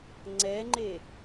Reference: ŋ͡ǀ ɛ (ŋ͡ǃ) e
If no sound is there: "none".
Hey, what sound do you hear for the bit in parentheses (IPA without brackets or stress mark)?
ŋ͡ǃ